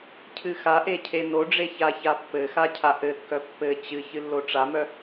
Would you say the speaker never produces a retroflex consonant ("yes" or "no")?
no